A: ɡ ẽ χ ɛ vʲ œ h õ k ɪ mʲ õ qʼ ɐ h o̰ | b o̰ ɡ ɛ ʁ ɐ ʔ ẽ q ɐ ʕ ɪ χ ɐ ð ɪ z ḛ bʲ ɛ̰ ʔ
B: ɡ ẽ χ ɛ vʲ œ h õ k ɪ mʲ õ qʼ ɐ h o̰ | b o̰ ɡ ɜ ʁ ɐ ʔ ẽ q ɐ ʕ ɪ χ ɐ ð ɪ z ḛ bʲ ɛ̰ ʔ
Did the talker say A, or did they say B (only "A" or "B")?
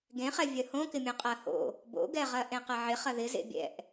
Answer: A